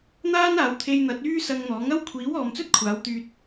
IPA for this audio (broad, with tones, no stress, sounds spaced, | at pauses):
n̪ aː˥ n aː˨˧ w t̪ʰ e˧ j n̪ ɐ˨˥ t̚ yː˥ s ɐ˧ ŋ n̪ ɔː˨˥ ŋ ɐ˥ w kʷʰ iː˨˥ w ɔː˨ m t͡s ɵ˥ t̚ kʷʰ aː˨˥ w t̪ yː˧ t̚